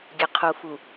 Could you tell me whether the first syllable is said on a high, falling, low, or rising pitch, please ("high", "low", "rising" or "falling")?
low